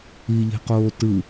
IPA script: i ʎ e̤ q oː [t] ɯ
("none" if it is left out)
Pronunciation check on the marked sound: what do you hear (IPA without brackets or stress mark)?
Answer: t